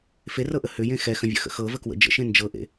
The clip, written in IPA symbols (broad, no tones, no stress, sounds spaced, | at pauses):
f e r ɤ ʔ ə h ʏ j ẽ x ɛ x ə̃ vʲ ə̰ x ə̰ x ɤ v ə k w ə̰ d͡ʒ ə̰ ʃ ẽ n d͡ʒ ɤ ʔ ḛ